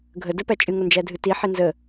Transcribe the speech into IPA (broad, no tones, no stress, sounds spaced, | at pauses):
ɡʱ ə d ə p æ t͡ʃʼ ɨ ŋ o n d͡ʒ æ dʱ ɨ t i ħ i n z ə